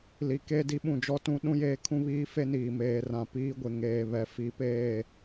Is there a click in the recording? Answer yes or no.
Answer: no